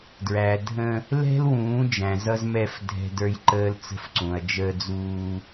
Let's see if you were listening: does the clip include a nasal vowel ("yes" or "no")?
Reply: yes